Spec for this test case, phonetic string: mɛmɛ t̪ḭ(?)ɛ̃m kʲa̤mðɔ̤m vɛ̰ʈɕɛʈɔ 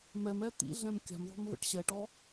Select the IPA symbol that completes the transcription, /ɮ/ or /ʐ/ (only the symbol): ɮ